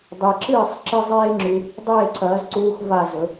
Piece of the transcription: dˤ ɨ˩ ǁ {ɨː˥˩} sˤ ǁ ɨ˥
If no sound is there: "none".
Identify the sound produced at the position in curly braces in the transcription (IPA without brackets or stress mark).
ɨː˥˩